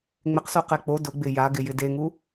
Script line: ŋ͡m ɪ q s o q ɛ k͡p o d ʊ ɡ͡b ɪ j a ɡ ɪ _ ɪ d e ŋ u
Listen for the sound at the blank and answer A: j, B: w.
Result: A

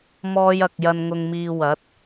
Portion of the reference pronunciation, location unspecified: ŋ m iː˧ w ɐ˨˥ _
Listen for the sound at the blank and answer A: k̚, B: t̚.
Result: B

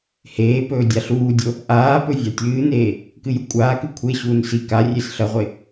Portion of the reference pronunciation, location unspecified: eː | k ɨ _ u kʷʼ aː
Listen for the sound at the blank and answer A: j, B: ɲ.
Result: A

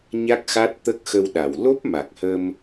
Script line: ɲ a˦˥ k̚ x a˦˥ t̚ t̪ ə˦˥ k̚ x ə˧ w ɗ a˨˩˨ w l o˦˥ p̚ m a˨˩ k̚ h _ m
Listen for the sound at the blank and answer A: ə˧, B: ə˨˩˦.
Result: A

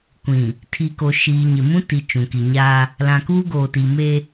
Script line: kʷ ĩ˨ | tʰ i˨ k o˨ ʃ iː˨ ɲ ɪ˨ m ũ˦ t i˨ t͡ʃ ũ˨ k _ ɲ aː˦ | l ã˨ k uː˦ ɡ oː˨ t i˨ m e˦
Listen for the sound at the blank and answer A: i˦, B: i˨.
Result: B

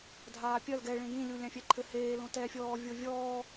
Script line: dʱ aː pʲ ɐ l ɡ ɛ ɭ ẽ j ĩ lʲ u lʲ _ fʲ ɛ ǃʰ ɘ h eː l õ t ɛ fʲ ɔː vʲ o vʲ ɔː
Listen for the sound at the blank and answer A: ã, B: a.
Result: A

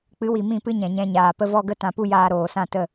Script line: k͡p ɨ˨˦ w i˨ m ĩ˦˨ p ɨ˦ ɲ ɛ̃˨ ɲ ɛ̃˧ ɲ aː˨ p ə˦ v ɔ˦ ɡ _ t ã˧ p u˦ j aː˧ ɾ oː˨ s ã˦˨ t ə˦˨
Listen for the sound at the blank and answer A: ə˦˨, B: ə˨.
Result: A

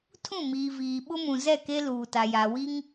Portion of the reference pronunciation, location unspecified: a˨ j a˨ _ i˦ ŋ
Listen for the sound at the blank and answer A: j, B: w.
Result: B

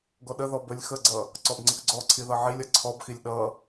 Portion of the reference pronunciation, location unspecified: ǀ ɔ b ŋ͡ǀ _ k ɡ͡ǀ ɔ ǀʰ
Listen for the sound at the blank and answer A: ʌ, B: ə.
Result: B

